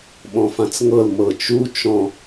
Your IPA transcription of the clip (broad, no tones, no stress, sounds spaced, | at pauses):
ɓ ɔ̃ f ã t͡s ŋ ɤ l m ɤ t͡ʃ u t͡ʃ ɔ̃